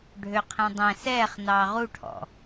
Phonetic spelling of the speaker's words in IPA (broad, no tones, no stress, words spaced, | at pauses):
ɖʱøqʰɛ̃dˤɛ̃ sɛːχ nɑːʁuʈʰɔ̰